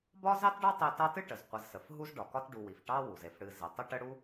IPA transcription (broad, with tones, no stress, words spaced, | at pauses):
bɒ˥zɑ˥tɖɒ˥ tˤi˦ tɑ˦tɨ˥ʈə˩z qʷə˨zsə˩f ɦu˥zɖɒ˨kɒ˥t ɖu˨wi˩f ʈɑ˦wu˩z e˨fɽɨ˨ zi˩tˤə˥ʈə˥ ɽu˦